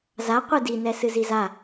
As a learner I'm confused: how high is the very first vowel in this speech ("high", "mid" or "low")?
low